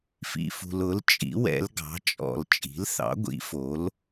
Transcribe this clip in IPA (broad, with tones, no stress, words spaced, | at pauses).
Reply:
fḭ˨fṳ˨lʊ˩˥l t͡ʃʼḭ˩˥ wɛ̰˩˥lɡɑ̤˩˥t͡ʃʼɔ̰˨l t͡ʃʼi̤˩˥lθɑ̰˩˥ ɡʷḭ˩˥fo˩˥l